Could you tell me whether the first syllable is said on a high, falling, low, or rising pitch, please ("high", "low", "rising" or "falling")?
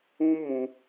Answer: high